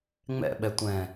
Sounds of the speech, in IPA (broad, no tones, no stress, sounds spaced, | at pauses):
ŋ͡m ɛ̰ ɓ ɛ tʷ ɛ̃